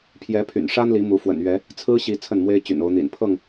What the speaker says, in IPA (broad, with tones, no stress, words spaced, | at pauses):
pʰjɛ˨˦pʰy̰˨˩nʂa˦nli˨˦ mu˨˦fwə̰˨˩nɥɛ˨˦ | t͡sʰɹ̩˦ɕi˨˦ t͡sʰə˥˨nmwe˦ɪ̯t͡ɕy̰˨˩n o˨˦ʊ̯n̪ḭ˨˩n pʰɤ˥˨ŋ